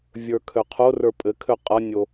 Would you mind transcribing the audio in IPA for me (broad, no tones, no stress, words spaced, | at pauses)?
vʲə˞kʰøqʰorə˞ pʼɘ kʰøqʼʌnʲo